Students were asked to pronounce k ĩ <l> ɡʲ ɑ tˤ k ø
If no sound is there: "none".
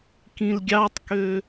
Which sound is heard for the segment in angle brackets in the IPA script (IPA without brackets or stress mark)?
l